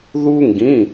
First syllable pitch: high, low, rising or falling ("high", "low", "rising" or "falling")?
high